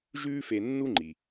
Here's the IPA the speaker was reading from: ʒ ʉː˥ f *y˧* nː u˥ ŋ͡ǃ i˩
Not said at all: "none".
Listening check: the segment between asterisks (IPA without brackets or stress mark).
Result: e˧